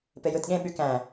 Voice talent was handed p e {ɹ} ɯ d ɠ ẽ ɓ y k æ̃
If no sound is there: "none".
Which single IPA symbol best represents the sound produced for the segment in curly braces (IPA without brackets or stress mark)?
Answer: j